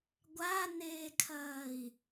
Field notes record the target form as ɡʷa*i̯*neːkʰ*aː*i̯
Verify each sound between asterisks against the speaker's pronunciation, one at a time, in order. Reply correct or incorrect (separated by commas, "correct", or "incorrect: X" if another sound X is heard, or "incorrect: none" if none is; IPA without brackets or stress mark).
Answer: incorrect: none, incorrect: ɐː